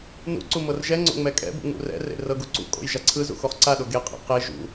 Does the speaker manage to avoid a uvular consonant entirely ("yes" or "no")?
no